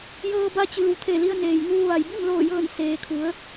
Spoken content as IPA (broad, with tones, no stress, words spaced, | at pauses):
jɤː˧ba˧t͡ɕɯː˩w t̪ʰe˧˩li˧ə̯neː˩jŋuː˧ ʋa˩jbi˥˨mloː˧˩jɤː˧˩n seː˩kʰu˩˧ə̯